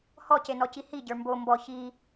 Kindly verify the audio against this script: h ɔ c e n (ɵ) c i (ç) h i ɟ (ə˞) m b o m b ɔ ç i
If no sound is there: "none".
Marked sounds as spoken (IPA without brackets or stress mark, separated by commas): ɔ, none, ə˞